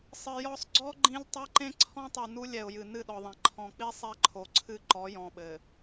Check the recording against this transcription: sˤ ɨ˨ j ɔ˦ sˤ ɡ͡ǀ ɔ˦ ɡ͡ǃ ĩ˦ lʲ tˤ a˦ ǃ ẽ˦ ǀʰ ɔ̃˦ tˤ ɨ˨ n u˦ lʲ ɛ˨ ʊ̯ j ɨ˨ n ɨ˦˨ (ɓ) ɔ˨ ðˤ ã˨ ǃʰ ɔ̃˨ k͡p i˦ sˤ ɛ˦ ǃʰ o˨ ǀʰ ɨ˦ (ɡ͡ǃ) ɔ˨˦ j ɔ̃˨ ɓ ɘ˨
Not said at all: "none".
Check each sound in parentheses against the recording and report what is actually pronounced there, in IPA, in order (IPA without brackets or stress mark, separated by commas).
ɗ, ǃ